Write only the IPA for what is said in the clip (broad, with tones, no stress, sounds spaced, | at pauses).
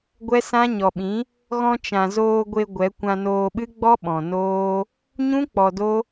ɡʷ ɛ˦ s ã˦ ɲ ɔ˨ ɓ ĩ˨˦ | ɣ ɔ̃˧ t͡ʃ ã˨ z oː˧ ɡʷ e˧ ɡʷ ɛ˨˦ kʷ ã˧ n oː˧ ɓ ɨ˦ ɡ͡b ɔ˦ ɓ ɔ̃˨ n oː˦ | ɲ ũ˦ k͡p ɔ˧ d o˦